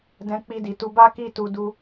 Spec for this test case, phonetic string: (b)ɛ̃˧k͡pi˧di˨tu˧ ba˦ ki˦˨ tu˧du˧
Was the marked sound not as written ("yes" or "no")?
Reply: yes